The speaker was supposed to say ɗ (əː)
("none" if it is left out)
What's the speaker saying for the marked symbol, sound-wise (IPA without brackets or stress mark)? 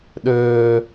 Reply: ɵː